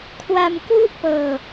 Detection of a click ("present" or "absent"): absent